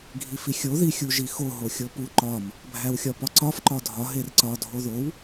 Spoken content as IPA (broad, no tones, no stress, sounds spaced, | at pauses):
ɡʱ i f i xʲ o ð i xʲ u ʒ i x o ɦ o xʲ o p u ǃ ɒ m | bʱ æ w xʲ ɒ p ɒ ǀ ɒ f ǃ ɒ dʱ ɒ ɦ e r ǀ ɒ dʱ o ð o w